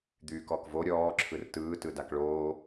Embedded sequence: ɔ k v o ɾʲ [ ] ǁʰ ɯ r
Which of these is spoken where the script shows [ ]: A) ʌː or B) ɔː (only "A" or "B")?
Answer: B